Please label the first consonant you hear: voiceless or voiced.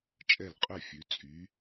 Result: voiceless